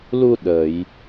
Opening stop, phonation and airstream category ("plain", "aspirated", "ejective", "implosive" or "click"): implosive